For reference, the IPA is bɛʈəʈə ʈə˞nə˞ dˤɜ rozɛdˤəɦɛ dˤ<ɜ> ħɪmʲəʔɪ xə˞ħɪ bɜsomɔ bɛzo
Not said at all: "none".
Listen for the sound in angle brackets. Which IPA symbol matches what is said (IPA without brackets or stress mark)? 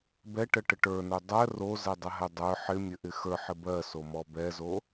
ə˞